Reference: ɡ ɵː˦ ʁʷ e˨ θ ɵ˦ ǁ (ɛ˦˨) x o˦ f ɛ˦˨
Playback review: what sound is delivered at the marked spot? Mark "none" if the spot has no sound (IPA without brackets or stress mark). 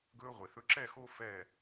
ɛ˦˨